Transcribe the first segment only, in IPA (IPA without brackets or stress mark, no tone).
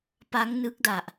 p